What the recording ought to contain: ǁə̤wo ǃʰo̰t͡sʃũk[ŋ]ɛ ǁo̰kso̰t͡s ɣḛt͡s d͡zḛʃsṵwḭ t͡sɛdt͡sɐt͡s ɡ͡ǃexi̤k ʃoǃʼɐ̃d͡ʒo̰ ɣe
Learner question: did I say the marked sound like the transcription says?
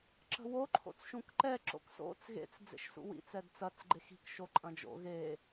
no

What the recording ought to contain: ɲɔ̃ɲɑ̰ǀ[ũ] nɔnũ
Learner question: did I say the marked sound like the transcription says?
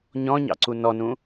no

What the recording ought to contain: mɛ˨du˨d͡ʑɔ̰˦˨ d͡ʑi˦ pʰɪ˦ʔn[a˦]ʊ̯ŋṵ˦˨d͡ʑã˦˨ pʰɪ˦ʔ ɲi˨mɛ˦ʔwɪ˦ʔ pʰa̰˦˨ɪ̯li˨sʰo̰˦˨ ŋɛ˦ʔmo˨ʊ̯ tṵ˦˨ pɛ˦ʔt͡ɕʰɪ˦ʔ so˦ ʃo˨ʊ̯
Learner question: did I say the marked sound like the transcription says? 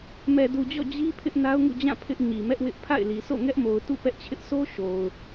yes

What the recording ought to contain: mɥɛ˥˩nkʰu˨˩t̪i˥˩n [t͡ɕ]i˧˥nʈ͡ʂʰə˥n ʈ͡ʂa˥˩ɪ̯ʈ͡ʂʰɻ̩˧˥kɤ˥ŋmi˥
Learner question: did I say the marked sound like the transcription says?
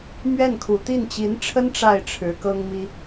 yes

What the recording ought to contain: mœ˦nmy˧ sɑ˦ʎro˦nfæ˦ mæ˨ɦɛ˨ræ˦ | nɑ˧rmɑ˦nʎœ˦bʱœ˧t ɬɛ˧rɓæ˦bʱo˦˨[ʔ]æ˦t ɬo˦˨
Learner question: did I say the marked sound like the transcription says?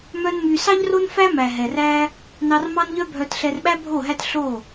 no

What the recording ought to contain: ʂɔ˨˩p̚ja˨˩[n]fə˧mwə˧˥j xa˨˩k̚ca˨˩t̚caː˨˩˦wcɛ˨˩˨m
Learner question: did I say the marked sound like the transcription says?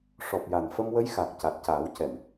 yes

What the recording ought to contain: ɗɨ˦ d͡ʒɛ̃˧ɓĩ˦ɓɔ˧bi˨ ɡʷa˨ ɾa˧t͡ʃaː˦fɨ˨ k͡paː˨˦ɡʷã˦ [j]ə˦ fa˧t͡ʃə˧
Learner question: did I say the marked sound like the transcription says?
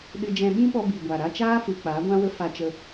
no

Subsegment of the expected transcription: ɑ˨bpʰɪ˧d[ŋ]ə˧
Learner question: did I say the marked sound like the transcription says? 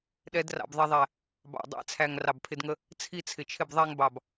yes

